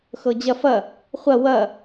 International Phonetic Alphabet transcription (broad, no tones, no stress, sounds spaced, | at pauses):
x ɤ d͡ʑ ɐ f ɐ | χʷ ɐ w ɐ